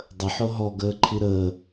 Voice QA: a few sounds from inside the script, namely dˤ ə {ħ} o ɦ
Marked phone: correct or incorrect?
correct